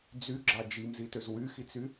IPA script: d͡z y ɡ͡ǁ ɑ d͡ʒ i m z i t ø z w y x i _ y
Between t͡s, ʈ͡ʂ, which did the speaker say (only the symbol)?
t͡s